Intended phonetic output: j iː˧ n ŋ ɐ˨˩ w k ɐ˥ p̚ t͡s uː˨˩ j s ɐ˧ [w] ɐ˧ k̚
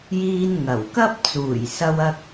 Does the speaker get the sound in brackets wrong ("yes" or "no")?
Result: no